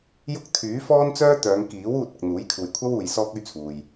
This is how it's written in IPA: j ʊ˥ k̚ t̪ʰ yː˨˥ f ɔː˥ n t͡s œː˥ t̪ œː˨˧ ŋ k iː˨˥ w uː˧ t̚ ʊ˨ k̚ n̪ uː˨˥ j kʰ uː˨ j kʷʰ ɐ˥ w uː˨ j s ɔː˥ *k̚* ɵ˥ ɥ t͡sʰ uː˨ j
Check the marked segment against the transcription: correct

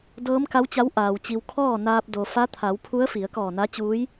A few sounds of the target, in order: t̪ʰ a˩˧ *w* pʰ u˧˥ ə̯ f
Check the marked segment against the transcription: correct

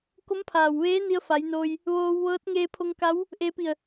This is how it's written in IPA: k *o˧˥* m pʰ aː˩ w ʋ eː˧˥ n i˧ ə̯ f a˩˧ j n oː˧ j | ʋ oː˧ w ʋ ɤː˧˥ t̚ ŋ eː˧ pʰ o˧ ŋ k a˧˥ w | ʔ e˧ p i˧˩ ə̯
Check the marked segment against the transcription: correct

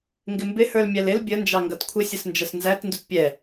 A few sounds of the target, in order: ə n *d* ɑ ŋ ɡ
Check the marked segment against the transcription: incorrect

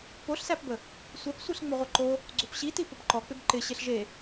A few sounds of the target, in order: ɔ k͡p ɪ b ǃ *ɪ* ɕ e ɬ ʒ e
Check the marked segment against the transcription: correct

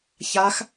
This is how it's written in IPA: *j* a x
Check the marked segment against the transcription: incorrect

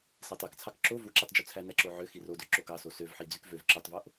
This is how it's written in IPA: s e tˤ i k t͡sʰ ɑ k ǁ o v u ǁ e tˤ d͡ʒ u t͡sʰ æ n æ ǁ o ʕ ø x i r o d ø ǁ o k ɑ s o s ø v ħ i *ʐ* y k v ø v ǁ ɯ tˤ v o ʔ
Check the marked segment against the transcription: incorrect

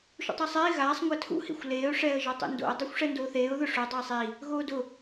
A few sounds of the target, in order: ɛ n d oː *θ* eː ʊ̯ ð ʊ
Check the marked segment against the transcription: correct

